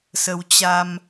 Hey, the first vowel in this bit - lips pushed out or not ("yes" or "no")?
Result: no